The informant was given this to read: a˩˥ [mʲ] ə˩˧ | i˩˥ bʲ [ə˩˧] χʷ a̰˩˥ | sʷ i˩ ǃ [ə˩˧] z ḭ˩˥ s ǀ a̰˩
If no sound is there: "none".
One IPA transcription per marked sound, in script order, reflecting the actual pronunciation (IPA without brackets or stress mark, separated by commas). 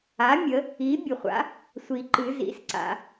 mʲ, ə˩, ɨ˩˧